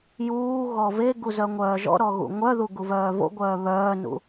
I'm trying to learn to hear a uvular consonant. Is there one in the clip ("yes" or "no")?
no